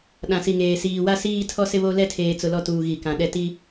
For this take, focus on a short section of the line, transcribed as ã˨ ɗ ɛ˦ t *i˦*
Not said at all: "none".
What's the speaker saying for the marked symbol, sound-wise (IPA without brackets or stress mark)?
i˦